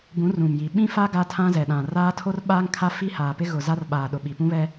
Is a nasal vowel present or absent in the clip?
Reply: present